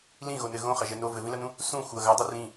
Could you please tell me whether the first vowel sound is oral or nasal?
nasal